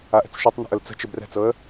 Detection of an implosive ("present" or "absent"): absent